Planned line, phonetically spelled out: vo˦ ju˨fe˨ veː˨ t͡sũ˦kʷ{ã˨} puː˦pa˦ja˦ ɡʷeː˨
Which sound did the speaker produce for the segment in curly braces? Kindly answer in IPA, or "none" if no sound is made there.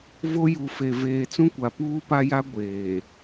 a˨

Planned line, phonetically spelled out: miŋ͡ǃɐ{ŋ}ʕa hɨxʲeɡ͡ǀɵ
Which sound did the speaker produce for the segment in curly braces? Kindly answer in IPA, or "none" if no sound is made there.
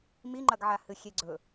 ɡ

